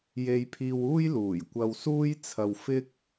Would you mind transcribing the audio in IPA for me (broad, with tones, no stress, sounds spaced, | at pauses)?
j e˥ j pʰ iː˥ w uː˥ j l uː˨˩ j kʷ ɐ˧ w s uː˥ j t͡sʰ ɐ˧ w f ɪ˥ k̚